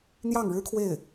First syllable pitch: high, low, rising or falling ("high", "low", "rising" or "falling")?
falling